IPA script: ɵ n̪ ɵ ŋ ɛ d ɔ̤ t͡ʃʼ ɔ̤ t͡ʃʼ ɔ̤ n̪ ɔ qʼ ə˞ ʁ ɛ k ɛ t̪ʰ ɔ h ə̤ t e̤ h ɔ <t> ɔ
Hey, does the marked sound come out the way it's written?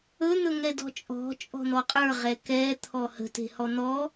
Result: no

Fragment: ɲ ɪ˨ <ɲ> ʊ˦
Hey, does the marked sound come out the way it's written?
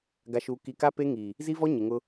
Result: no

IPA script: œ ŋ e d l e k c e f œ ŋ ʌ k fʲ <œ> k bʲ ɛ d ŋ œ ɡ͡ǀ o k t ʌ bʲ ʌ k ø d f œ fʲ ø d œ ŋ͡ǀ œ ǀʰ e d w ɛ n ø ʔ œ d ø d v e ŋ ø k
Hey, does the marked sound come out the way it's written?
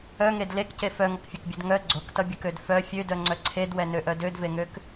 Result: yes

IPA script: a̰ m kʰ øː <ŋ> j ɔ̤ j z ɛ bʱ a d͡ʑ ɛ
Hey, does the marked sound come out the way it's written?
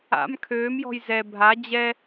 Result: no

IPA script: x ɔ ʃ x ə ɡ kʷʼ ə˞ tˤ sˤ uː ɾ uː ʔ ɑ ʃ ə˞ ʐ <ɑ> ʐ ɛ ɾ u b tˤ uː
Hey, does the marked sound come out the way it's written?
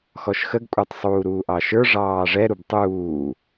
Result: no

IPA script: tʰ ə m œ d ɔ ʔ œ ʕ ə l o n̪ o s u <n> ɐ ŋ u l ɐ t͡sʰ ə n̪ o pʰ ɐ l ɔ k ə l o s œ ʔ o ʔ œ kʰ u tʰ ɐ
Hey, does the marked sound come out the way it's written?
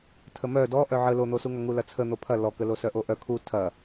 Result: no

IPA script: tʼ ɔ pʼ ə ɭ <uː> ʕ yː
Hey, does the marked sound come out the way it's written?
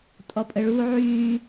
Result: yes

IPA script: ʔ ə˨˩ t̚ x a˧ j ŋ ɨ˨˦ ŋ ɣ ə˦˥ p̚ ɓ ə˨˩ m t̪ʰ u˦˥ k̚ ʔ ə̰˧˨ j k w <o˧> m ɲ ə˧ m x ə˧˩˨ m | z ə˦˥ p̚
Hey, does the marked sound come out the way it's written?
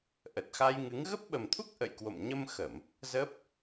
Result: no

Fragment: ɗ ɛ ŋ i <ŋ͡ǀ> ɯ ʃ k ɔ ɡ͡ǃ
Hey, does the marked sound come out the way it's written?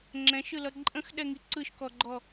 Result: no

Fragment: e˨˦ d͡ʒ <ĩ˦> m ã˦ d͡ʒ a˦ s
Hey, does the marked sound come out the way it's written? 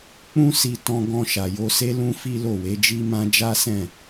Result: no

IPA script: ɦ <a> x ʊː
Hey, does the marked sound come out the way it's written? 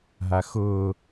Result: yes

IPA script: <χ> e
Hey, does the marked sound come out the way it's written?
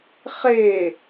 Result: yes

